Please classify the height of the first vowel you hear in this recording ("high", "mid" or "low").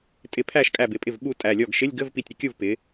high